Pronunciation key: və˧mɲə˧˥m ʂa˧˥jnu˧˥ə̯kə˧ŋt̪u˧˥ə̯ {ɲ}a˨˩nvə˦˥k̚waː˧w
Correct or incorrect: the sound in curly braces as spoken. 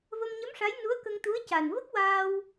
incorrect: c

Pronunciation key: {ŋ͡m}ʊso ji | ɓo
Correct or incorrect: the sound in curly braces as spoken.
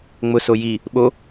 correct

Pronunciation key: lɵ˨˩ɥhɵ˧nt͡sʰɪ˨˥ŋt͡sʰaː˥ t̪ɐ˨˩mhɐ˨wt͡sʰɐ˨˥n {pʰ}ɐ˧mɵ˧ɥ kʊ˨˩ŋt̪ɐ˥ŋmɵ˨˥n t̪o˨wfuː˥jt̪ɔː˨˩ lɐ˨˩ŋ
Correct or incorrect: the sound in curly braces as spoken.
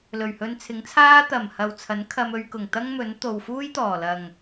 incorrect: kʰ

